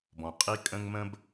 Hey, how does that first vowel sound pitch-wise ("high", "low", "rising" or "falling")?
low